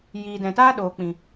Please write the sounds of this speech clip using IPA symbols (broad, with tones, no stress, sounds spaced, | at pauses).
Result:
j iː˨ d ɛ̃˨ t aː˦ ɗ oː˨ k͡p ĩ˨